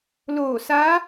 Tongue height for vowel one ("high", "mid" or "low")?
mid